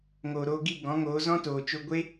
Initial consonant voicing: voiced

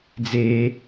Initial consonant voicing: voiced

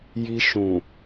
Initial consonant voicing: voiced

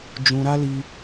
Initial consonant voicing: voiced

